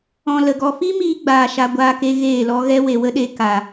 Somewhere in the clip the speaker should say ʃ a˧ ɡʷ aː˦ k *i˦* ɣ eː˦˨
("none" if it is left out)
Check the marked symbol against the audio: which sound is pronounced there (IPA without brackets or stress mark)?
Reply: e˦